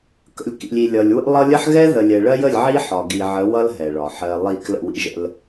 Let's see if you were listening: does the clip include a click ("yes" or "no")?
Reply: no